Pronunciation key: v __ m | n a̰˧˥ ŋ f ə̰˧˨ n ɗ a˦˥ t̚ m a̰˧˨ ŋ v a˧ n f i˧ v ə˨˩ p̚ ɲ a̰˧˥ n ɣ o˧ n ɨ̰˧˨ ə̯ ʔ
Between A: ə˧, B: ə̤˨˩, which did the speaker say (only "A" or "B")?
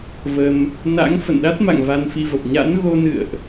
A